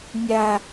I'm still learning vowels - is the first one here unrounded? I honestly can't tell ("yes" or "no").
yes